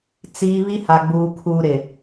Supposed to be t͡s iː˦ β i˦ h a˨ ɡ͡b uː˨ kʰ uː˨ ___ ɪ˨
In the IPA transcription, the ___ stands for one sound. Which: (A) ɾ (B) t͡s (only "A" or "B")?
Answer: A